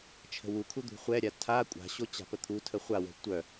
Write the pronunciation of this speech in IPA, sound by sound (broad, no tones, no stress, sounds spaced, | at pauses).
t͡ʃʰ ə̤ w u kʰ u d̪ ṳ χʷ ɛ ɾʲ a tʰ a kʷʼ a̤ ɕ o t͡ɕ a̤ p ə t̪ʰ u tʰ ə χʷ a w ə̤ tʷ œ